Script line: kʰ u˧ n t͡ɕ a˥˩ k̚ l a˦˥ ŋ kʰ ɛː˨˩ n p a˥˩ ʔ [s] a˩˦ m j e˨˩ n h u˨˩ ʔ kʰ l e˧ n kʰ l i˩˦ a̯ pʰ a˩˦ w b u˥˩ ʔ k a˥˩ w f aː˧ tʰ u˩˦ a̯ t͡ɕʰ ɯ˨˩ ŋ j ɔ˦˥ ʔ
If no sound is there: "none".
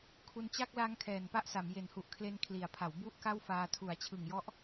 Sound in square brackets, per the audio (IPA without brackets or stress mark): s